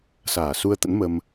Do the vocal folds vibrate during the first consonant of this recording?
no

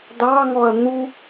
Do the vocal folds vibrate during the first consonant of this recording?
yes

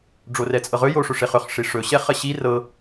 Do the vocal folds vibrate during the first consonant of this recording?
yes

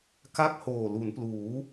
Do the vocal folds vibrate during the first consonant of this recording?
no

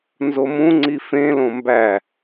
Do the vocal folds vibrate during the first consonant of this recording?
yes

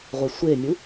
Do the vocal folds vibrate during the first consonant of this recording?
yes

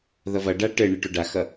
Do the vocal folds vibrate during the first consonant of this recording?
yes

